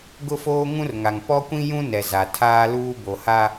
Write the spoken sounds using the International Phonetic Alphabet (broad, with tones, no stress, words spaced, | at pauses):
ɡʊ˦foː˦ŋũ˦rŋa˨ŋ pɔ˦kʷĩ˦jũ˦nɛ˨ za˨tʰaː˦luː˦ bo˨ha˦